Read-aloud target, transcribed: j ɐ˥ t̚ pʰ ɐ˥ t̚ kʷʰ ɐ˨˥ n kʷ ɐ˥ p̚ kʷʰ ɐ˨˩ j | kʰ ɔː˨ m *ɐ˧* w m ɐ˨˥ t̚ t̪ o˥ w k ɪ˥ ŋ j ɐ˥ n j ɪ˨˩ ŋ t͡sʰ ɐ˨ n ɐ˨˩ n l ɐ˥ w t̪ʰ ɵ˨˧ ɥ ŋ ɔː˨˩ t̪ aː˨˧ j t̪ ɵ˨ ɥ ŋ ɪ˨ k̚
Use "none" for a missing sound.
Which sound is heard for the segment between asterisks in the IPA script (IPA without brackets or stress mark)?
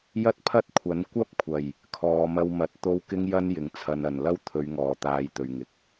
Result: ɐ˧